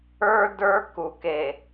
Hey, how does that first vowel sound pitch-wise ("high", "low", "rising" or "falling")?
high